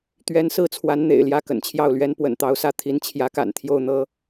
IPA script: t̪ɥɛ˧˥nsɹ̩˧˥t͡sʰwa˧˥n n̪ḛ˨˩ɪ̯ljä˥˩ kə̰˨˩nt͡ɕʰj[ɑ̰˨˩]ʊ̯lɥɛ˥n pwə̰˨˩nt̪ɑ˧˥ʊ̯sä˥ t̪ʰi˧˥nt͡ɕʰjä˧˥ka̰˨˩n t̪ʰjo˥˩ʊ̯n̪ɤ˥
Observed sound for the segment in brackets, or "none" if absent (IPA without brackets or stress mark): ɑ˥˩